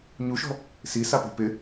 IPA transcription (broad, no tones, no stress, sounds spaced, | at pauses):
ɲ u ʃ ɔ̤ | s i s a p e̤ p ɪ